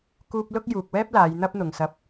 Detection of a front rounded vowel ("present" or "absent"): absent